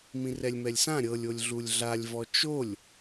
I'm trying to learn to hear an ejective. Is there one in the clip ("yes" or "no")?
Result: no